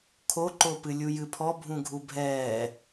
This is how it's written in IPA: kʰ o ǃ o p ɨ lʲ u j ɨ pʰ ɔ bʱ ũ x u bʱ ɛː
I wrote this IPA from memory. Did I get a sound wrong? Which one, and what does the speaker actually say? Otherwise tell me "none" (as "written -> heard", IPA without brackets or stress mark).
x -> ɡʱ